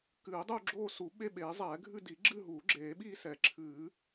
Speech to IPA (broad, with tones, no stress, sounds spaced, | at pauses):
k ɨː˨˩˦ ɪ̯ dˤ uː˥˧ ɡ͡ǁ oː˥˧ s u˨˩˦ ɓ e˥˧ ɓ eː˨˩˦ zˤ ɛː˨˩˦ ɡʱ ɨ˥˧ d i˨˩˦ ɡ͡ǁ ɨ˥˧ ɦ uː˨˩˦ ɡ͡ǁ eː˨˩˦ ɓ iː˥˧ s ɛ˨˩˦ ǁʰ ɨː˨˩˦